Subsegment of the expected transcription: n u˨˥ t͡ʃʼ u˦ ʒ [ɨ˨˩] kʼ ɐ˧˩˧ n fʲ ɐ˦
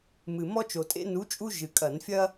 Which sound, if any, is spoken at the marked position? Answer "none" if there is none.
ɨ˨˩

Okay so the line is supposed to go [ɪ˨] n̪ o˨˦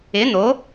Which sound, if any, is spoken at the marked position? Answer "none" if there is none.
ɪ˨˦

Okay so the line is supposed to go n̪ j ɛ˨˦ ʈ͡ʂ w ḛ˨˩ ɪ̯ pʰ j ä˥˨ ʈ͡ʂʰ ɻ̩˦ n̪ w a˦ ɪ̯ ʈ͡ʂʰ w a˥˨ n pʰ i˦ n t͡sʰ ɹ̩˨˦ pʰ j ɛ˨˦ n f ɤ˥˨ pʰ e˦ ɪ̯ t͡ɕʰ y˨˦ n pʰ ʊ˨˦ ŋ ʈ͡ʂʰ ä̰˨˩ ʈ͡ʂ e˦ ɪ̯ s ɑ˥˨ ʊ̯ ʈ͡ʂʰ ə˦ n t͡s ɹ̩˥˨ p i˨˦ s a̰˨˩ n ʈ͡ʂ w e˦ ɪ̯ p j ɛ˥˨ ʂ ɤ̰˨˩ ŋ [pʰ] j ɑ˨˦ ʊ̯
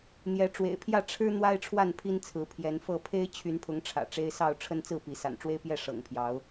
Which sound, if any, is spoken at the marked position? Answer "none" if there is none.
pʰ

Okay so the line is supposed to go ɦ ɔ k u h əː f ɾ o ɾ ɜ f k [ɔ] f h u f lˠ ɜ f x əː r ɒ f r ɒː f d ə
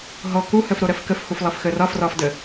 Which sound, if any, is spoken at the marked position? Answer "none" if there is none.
ə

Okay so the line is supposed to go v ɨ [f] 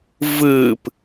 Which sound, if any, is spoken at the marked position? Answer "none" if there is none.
p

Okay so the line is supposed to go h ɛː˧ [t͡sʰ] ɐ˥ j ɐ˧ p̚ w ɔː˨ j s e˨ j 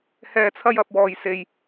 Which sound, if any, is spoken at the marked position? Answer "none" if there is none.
t͡sʰ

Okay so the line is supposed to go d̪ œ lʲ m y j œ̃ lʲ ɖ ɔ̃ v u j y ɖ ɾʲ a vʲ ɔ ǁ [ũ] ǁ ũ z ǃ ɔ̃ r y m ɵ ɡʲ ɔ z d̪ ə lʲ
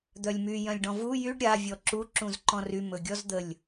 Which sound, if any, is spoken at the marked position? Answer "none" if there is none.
u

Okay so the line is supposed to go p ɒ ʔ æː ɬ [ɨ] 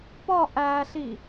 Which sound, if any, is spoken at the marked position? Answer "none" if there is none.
i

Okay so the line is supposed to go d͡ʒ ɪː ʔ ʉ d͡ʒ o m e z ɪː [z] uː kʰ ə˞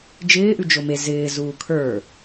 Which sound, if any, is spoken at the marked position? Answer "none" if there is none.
z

